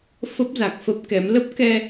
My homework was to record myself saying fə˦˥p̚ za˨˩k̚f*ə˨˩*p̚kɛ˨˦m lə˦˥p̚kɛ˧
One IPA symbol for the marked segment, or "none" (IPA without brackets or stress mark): ə˦˥